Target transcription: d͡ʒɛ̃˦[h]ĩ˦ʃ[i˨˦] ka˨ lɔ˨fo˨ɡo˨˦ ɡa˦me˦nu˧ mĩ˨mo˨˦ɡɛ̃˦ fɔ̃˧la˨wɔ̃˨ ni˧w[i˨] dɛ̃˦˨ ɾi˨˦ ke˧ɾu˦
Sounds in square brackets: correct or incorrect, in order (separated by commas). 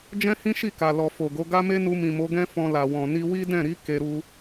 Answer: correct, incorrect, incorrect